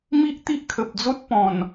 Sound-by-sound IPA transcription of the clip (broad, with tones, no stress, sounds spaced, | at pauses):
m i˦ ʔ t̪ i˦ ʔ kʰ ə˨ p̚ d͡z o˦ t̚ p ɔ̃˨˩ n